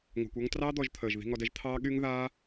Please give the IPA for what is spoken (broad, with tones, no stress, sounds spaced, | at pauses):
ŋʷ ɑ̤˧ kʷ ɔ˦ ŋ t r ɑː˦ d̪ ɔ˧ ʒ t̪ʰ əː˨ ʒ ð i̤˧ ŋ ɔ˧ d ɛ˦ ʒ t̪ʰ ɑː˦ ɠ y˦ ŋ ð aː˦